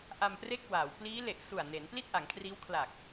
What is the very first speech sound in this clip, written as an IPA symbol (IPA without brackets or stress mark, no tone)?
ʔ